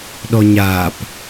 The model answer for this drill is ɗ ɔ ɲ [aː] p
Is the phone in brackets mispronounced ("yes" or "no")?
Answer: no